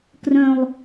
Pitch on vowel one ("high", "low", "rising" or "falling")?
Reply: low